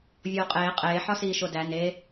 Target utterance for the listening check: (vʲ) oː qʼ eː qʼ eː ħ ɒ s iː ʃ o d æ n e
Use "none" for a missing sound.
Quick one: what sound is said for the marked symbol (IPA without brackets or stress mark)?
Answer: vʲ